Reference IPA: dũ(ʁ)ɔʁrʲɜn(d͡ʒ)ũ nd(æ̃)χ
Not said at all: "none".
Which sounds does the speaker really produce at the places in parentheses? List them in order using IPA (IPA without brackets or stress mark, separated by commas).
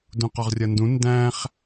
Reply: q, d, æ̃